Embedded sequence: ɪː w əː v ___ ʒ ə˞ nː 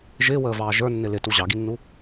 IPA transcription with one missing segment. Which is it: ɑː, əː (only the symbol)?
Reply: ɑː